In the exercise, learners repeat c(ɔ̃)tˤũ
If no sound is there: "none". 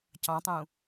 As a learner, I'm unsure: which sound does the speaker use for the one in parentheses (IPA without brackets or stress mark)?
ɑ̃